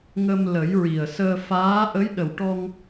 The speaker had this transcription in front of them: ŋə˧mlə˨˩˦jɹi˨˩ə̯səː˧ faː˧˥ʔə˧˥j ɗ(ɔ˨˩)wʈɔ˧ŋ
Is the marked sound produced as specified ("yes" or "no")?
no